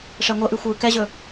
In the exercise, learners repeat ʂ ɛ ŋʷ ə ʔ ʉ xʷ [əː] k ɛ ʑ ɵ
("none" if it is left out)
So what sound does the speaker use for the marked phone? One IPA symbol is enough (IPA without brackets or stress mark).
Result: ɯː